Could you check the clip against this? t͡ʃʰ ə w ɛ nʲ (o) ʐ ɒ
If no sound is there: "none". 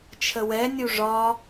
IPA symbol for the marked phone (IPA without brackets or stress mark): u